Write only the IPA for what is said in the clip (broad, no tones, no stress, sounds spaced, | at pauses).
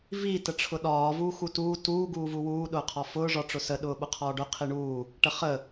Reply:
v i t ə ʈ͡ʂʰ ʊ ɗ ɒː v uː x u t uː t uː ɡ uː v u w uː ɗ ʊː qʰ ɒ f ʊː ʐ ɒ ʈ͡ʂ ʊ s ə ɗ ʊː ɓ ʊ qʰ ɒː ɖ ʊ qʰ i ɳ uː | ʈ ə χ ə